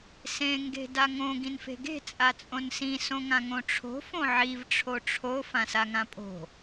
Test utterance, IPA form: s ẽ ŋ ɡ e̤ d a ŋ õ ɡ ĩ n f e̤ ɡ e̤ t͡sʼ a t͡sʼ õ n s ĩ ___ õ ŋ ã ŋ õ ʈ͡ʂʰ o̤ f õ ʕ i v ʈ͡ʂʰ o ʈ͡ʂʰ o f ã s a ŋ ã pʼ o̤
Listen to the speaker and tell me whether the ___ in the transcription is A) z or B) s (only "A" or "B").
B